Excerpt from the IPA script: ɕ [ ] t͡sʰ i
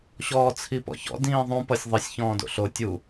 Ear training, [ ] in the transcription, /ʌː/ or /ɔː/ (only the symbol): ɔː